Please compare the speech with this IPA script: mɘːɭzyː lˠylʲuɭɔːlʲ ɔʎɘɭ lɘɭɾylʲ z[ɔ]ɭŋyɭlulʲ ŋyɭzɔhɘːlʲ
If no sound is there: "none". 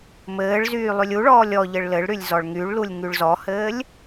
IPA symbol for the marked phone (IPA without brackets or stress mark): ɔ